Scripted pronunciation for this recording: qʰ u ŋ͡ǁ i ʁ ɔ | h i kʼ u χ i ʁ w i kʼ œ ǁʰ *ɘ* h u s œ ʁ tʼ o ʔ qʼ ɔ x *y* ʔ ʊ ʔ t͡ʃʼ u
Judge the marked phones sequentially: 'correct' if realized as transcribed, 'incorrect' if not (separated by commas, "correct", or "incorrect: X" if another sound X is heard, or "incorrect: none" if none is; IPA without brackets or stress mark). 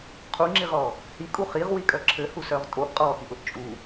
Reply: correct, incorrect: i